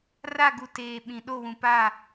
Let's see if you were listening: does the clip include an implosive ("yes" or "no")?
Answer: yes